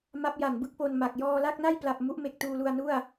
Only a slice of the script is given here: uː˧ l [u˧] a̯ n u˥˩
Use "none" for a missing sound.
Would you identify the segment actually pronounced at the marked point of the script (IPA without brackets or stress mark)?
u˧